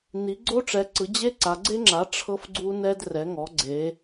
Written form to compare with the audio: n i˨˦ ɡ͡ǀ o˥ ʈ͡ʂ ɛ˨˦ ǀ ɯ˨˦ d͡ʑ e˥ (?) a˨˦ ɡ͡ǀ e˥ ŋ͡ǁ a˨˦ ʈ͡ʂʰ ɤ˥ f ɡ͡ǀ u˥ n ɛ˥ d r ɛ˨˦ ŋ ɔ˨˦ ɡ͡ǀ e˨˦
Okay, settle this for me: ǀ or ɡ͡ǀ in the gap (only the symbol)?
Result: ǀ